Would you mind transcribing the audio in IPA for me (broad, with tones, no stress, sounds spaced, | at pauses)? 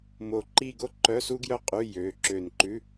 m o˧˩ ǃ i˥˧ ɡ o˥˧ ǃ œ˧˥˧ s u˥ ɡ j œ˥˧ qʼ ʉ˧˥˧ j ø˩˧˩ ǁ ø˧˩ n ǃ ʉ˧˥˧